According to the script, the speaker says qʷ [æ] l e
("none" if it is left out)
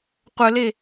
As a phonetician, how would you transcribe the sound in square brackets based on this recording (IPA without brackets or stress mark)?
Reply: œ